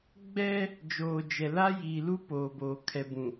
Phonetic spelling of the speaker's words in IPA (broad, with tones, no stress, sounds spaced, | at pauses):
ɡ͡b ɛ˦ | d͡ʒ oː˨ d͡ʒ ɛ˨ l a˦ j i˨ l uː˦ p oː˨ b oː˨ kʰ ɛ˨ b ũ˨